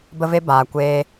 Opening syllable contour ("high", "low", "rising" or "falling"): high